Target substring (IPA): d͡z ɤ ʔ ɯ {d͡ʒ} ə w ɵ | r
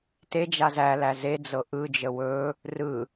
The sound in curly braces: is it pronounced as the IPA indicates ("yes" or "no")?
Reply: yes